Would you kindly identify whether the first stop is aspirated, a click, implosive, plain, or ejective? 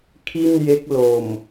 aspirated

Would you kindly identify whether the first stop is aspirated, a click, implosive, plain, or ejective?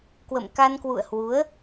plain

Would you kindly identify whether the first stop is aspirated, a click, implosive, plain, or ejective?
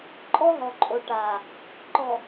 click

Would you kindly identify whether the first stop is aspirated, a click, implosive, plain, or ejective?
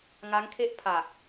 aspirated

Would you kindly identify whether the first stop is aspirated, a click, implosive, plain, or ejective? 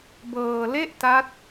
plain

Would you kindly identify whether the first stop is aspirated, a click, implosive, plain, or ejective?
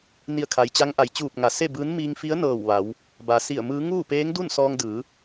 aspirated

